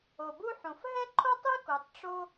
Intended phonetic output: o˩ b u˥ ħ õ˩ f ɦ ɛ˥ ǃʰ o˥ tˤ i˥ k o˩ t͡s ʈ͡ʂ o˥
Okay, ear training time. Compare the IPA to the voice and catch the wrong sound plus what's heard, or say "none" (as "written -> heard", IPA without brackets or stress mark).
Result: t͡s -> tˤ